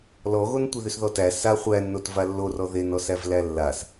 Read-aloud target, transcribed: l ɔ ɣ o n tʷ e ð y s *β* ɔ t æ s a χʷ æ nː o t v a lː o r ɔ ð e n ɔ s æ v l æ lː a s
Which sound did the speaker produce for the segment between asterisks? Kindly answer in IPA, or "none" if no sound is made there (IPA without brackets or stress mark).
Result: ð